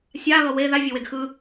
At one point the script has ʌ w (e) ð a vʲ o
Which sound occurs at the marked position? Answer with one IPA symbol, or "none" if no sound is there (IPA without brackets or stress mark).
e